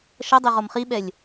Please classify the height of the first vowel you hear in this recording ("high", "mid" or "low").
mid